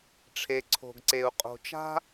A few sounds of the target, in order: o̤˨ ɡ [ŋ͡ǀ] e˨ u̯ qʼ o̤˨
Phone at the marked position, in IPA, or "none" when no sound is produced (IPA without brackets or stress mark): ǀ